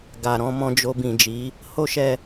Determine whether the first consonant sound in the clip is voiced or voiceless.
voiced